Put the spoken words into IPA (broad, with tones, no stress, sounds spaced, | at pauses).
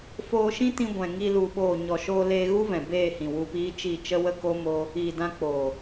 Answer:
f oː˧ ʃ ĩ˦ t ĩ˧ ɡʷ ɛ̃˨ ŋ i˧ l u˧ ɓ oː˦˨ ɲ ɔ˨ ʃ oː˧ l eː˧ ɣ u˦ v ɛ̃˨ b eː˦˨ h ĩ˨ w u˧ p iː˦ t͡ʃ i˦˨ t͡ʃ ə˦ w ə˦ k o˦ m o˦ | iː˨ d ã˧ k͡p oː˨